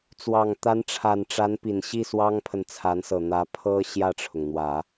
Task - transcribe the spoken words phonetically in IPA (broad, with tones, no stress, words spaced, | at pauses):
t͡swɑ˨˩ŋt̪a˧˥nʈ͡ʂʰa˨˩nʈ͡ʂa˧˥n pi˨˩nɕi˥˩swɑ˥ŋpʰə˨n t͡sʰa˧˥nsɤ˨˩n̪ä˧˥ pʰɤ˥ ɕjä˥˩ʈ͡ʂʰʊ˩ŋ n̪wä˨˩˦